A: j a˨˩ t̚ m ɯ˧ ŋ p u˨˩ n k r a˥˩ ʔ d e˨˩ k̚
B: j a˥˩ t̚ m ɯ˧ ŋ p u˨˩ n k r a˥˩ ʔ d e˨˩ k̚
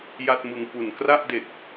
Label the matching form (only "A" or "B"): B